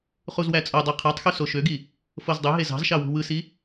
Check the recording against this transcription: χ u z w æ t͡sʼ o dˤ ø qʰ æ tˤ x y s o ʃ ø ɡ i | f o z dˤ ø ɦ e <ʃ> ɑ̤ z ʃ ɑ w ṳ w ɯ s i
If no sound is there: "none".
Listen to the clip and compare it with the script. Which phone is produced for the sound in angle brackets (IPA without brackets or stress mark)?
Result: z